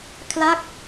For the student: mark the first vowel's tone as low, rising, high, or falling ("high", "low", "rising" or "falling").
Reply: falling